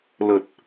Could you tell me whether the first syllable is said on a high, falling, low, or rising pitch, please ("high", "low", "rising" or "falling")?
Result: low